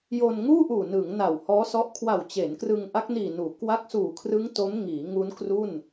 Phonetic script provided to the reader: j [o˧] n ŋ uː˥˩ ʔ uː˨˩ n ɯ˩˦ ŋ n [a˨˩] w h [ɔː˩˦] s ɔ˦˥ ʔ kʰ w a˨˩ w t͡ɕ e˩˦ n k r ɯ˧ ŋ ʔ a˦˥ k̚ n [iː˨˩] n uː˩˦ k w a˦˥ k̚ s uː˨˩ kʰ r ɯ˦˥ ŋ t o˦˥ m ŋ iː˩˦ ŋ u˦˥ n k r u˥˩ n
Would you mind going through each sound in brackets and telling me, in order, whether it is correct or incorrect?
correct, correct, incorrect, correct

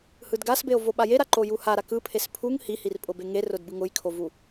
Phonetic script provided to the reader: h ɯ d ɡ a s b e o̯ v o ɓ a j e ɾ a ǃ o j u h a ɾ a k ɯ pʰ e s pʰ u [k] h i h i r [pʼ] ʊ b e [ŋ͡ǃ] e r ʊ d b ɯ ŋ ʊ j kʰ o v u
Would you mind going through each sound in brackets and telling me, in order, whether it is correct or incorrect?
incorrect, correct, incorrect

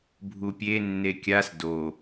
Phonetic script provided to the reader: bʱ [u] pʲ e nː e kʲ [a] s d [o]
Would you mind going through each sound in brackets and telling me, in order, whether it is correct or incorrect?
correct, correct, correct

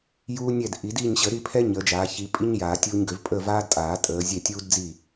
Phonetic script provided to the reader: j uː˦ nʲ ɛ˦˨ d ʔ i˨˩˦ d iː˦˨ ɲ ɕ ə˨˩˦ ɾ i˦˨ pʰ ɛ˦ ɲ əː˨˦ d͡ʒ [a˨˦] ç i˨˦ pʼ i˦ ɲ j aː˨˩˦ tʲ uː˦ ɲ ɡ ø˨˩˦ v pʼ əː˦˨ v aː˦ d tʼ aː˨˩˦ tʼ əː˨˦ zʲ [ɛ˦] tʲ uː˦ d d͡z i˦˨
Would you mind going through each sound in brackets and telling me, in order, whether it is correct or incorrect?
incorrect, incorrect

